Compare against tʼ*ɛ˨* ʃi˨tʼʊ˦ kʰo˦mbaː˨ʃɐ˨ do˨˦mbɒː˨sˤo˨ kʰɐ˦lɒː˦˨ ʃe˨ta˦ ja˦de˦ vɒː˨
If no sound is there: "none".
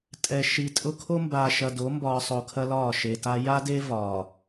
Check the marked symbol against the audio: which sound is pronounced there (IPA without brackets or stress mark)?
ɛ˨